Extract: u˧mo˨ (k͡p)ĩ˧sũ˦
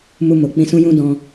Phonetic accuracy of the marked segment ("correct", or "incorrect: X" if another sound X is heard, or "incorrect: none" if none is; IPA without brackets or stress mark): correct